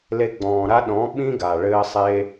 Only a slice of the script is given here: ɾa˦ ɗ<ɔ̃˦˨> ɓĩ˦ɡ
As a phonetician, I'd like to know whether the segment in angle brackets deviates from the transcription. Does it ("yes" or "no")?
yes